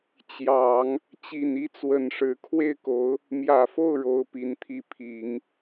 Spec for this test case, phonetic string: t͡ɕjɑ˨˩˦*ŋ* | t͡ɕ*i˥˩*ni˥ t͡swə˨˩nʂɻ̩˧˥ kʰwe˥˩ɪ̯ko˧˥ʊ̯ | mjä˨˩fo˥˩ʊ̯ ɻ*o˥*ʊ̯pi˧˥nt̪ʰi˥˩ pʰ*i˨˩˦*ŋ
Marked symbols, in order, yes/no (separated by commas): yes, no, yes, yes